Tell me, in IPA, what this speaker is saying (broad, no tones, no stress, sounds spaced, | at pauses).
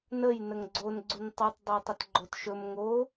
n ə j n ə ŋ ɡ͡ǀ o n ɡ͡ǀ u n tˤ u tˤ dˤ o tˤ ə t ɡ͡ǃ o t ʃ ɵ m ŋ o